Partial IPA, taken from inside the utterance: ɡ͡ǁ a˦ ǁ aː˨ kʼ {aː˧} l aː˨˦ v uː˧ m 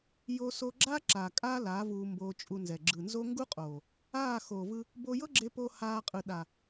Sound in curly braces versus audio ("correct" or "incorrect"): incorrect